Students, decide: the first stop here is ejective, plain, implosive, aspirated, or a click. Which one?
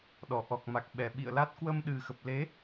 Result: implosive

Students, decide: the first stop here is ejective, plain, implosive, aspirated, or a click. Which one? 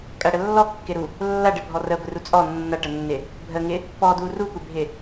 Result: ejective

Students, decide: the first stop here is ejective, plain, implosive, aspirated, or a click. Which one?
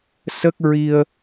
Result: plain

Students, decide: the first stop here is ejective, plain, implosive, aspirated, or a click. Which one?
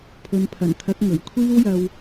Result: aspirated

